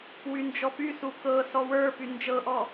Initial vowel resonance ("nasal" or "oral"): oral